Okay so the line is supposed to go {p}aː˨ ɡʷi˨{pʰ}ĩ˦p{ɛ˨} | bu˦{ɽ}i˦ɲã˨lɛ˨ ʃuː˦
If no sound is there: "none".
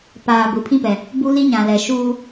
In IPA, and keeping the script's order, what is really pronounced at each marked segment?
p, pʰ, ɛ˨, l

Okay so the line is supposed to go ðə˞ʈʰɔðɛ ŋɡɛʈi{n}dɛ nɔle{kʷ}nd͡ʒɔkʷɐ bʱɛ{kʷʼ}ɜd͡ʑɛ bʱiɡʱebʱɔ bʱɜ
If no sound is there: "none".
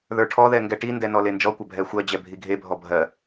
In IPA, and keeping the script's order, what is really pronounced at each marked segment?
n, none, xʷ

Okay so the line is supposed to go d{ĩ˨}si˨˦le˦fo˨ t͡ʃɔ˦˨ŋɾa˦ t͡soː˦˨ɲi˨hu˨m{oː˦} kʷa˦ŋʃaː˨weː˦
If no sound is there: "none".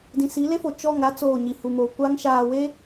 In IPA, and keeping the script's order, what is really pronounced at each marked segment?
ĩ˨, oː˨

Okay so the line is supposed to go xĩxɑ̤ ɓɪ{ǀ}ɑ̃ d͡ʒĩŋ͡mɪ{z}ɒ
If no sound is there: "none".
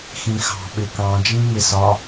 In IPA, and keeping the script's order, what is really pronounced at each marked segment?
k, s

